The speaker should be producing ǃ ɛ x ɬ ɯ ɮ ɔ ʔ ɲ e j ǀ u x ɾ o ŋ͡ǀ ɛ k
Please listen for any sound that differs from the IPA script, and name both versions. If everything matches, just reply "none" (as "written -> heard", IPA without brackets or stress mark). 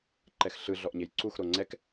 none